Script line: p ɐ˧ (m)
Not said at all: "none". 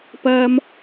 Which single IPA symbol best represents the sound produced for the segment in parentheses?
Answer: m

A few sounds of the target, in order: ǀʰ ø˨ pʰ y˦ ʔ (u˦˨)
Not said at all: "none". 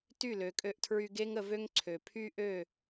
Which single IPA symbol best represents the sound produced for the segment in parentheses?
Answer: ø˦˨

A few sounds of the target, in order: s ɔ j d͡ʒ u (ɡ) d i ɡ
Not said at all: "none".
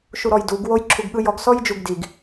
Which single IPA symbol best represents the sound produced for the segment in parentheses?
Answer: ɡ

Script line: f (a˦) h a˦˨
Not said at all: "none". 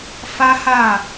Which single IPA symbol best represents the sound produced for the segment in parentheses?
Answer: a˦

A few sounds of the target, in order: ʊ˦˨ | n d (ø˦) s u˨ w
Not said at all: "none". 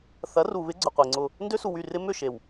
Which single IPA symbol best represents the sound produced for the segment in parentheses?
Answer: ø˦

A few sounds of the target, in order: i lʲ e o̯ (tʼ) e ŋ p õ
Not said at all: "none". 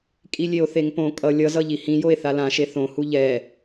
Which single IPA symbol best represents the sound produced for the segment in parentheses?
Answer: θ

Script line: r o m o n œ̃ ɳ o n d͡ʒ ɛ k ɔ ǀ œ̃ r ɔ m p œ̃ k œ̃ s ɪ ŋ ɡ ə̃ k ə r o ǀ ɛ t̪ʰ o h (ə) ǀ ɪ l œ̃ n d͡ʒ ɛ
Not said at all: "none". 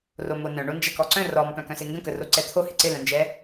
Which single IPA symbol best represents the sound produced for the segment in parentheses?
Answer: ɪ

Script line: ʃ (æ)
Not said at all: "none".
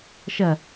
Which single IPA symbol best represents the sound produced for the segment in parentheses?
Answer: ɐ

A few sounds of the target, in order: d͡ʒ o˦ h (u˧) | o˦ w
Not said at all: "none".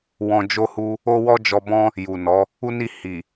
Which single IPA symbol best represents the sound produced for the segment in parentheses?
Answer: u˦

